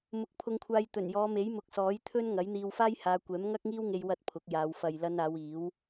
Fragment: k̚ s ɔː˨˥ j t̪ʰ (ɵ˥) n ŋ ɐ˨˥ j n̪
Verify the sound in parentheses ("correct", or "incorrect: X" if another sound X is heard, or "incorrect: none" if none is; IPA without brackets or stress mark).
correct